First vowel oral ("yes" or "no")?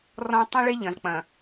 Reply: no